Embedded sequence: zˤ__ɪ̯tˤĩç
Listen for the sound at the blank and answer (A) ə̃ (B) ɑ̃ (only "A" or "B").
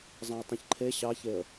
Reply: B